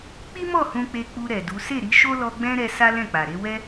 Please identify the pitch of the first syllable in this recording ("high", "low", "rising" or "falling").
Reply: high